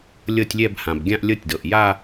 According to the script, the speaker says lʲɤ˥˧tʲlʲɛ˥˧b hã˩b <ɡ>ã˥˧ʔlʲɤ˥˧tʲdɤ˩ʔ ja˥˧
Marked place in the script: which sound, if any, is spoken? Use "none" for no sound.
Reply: ɡʲ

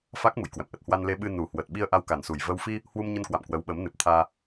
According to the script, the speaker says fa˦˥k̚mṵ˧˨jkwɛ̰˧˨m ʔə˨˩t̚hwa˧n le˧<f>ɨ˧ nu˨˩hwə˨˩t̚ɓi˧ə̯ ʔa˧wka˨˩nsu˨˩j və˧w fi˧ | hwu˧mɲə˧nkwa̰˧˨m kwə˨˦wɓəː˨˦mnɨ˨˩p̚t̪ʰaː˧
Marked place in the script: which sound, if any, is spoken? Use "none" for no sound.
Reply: ɓ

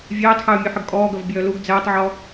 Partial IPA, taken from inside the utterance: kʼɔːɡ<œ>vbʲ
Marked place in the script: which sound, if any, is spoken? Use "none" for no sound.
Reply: œ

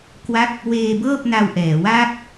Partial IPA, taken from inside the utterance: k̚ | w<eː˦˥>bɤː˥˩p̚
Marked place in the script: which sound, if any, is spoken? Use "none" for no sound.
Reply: eː˧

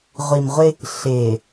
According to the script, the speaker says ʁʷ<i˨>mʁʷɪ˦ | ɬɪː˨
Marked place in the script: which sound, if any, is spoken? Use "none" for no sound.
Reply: i˨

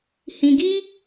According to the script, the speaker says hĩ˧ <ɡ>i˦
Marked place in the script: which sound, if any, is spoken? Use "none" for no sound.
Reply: ɡ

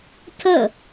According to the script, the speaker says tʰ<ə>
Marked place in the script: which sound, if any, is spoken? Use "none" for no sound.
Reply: ə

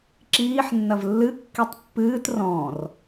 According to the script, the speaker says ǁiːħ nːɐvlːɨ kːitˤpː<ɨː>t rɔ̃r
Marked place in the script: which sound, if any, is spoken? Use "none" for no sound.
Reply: ɨː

